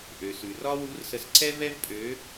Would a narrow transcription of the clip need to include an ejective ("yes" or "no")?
yes